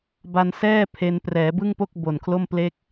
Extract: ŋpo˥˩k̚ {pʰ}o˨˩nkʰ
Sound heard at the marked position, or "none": b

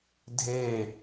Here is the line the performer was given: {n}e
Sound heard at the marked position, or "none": dʱ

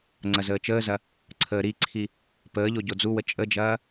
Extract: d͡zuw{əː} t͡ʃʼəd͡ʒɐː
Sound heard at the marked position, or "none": ə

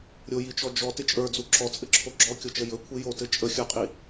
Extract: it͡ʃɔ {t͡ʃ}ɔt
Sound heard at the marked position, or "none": d͡ʒ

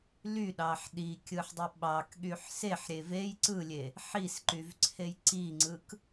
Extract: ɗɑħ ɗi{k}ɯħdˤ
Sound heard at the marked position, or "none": kʲ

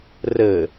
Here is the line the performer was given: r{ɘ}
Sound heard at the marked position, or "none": ɘ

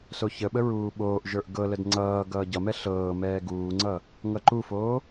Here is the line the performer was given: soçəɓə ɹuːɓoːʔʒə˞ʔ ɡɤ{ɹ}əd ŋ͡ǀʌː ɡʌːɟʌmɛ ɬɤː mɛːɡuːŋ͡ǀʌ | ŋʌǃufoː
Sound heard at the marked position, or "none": l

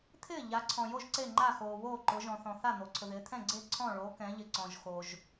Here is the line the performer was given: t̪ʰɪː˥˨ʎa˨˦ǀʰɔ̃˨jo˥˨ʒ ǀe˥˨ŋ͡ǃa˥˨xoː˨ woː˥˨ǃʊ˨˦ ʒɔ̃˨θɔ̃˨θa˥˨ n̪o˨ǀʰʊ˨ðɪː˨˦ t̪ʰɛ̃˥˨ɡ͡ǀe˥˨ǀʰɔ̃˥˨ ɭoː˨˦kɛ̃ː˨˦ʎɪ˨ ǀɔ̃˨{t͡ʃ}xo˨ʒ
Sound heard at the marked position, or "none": ʒ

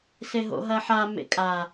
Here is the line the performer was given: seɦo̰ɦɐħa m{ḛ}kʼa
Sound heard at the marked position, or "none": ḛ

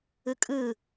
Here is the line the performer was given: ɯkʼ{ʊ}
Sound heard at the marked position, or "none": ɯ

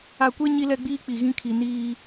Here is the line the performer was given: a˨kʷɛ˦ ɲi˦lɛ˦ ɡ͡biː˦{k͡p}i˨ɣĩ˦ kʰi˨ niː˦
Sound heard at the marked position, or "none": k͡p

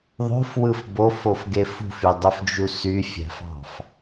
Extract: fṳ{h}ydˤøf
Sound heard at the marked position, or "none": f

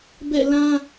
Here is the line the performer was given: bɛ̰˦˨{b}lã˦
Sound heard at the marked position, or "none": none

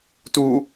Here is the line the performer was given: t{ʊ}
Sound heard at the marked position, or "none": u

